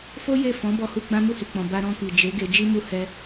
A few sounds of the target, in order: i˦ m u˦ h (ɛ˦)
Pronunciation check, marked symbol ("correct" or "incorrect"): correct